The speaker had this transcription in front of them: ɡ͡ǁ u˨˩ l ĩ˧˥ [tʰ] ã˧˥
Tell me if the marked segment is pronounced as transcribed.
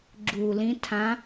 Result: yes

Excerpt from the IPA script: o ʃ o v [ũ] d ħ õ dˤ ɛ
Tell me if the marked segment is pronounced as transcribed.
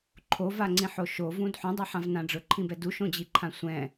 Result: yes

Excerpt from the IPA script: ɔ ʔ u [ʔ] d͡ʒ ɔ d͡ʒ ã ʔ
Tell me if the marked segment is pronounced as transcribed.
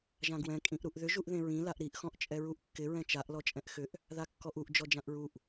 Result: yes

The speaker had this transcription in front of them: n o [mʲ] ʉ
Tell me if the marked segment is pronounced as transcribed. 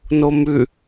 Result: no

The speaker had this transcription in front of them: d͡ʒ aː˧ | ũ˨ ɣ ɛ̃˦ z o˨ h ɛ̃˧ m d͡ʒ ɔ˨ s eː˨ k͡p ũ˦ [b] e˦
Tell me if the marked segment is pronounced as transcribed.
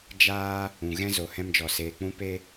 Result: no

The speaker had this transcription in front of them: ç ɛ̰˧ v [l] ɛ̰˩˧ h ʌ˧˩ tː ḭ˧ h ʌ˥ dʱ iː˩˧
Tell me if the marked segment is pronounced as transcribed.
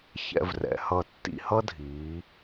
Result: no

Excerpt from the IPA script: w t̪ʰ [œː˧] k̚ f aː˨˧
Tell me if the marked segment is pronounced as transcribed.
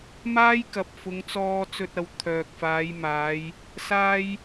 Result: no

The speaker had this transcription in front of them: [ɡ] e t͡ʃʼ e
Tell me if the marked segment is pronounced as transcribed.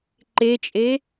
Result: no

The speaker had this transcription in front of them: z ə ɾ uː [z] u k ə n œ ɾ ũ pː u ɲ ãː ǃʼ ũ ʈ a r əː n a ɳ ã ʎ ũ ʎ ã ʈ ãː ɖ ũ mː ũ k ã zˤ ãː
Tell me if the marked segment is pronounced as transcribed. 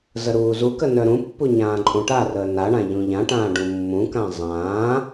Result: yes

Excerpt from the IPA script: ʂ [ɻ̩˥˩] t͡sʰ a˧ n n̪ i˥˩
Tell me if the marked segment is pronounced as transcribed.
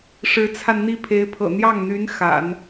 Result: no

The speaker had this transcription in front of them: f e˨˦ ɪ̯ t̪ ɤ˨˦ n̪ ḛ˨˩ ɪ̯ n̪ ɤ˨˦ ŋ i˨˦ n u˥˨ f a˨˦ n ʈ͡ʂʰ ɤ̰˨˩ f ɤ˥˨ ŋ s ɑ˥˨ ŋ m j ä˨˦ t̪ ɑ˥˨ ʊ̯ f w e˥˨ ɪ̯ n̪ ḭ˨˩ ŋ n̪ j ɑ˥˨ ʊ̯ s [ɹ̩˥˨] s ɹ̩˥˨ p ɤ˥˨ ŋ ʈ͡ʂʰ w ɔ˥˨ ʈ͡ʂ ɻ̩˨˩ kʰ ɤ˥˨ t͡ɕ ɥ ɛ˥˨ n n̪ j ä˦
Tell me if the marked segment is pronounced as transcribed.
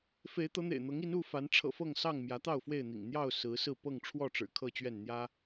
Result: no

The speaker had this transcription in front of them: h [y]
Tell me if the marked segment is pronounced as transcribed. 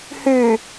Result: yes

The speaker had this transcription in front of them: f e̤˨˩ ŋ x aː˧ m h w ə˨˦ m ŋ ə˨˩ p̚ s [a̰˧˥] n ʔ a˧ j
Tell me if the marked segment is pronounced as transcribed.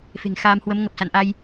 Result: no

